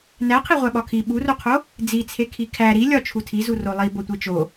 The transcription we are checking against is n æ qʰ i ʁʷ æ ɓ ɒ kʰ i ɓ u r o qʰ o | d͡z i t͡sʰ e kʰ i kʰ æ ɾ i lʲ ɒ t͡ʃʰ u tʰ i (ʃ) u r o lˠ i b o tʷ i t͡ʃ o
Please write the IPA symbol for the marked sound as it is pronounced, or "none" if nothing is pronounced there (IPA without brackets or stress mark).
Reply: z